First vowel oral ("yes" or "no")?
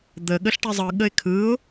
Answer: yes